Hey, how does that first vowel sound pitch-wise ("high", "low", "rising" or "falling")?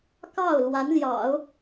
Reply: falling